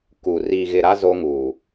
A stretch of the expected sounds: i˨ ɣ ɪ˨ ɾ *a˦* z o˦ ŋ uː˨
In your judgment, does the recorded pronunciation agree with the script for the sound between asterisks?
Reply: yes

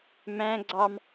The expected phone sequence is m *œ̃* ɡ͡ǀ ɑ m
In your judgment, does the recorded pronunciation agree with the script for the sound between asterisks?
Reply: no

